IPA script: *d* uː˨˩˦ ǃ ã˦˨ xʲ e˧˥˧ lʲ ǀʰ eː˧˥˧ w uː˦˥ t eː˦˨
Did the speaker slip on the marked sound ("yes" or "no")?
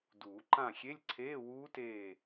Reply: no